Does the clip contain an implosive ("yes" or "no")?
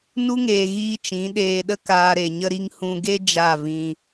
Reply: yes